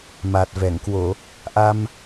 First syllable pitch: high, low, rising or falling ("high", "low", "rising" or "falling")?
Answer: low